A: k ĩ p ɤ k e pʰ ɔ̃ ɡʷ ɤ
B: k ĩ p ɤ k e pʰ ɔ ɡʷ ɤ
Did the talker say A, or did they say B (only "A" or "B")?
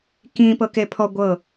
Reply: B